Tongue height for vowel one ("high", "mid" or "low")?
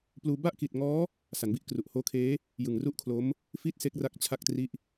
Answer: high